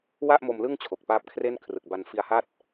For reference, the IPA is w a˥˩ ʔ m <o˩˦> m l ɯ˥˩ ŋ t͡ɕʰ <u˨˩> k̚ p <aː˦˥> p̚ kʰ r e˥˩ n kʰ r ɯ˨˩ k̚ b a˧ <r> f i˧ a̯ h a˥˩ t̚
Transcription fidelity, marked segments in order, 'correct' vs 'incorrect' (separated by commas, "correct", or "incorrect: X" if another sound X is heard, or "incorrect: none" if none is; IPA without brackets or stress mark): incorrect: o˧, incorrect: o˨˩, correct, incorrect: n